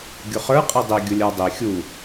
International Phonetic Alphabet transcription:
ɡʲʊχə˞ qʼidˤi ɡʲʊlʲə˞dˤi xʲu

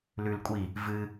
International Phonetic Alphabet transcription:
lʉl kʷʼi | vɨ

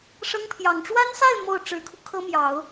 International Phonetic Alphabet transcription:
ʂɤ˥ŋpʰjɑ˨˩ŋ ʈ͡ʂwa˥nsa˥˧ɪ̯ mo˥˩ʊ̯ ʈ͡ʂɻ̩˧˥kʰu˧ kʰɤ˥mjɑ˨˩˦ʊ̯

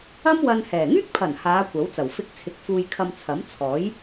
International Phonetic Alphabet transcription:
ɐ˥mwɐ˧n hɛː˨˩ ŋyː˥k̚pʰɐ˨˩n haː˨˧ kʷɐ˨˥wt͡sɐ˨˩w fɪ˧k̚t͡sʰɪ˨k̚ fuː˧jkʰɐ˧mt͡sʰɐ˨˥m t͡sʰɔː˨˥j

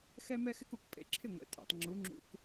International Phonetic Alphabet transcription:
xɛ˥mɛ˥xɪ˥ku˩k pʼḛ˧ǁʰɪ˥˩ŋʷɛ̰˩ tʼɛ̰˩tˤŋ͡ǁu˩˥ŋ͡ǁṵ˧k

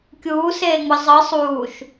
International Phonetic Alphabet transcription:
kʲuːseːŋ͡mɯ zˤɯ sˤuːʃ

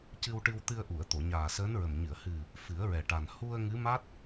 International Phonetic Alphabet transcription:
cɨ˧wʈɨ˧w t̪ɨ˧ə̯ʔu˨˩˨ə̯t̪o˨˩˨ ɲaː˨˩səː˧˥nɹə˨˩m ɲɨ˨˩˨ə̯hɨ˨˩ | fɨ˨˩˦ə̯ɹɛ˨˩ʈa˨˩n hu˧ə̯ ŋɨ˧˥ ma˦˥t̚

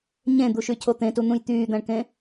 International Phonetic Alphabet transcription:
ɲẽd̪uʃycʰo t̪ẽtun̪ũj t̪yːd̪æ̃ɳkẽ

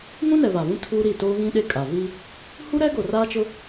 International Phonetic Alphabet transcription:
ŋũ˦nɛ˨ βa˨vũ˦ tʰuː˦ɾi˦˨ toː˦ɣĩ˦ɗe˦kʼa˨ vi˦ | hu˦ɾɛ˦ɡo˨ raː˦t͡ʃʊ˦

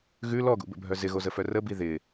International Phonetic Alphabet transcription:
ɣʉ lɔɡṵbə̰bʱœ zɪɣozəfœ rəbi ðɪ

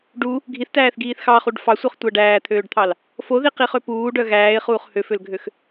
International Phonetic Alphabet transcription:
ɖu | ɡʱiθtæːθɡiːθ xɑχuɖ fɑsʷœχtʷæ ɖæːt̪ʰøːɖt̪ʰɑl | foðiqiχø puːɖœ ɣæːɪ̯χuːχ høfølɡʱøx

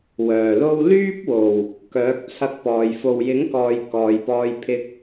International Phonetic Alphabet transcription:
wœː˨˩lo˥w lyː˥p̚wo˨˩w | kœː˨˥k̚t͡sʰɐ˧k̚pɔː˨j fo˨wjɪ˨˥ŋkɔː˨j kɔː˨jpɔː˧j pʰɪ˧k̚

